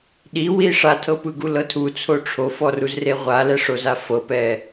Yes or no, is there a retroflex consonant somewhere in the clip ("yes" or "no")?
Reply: yes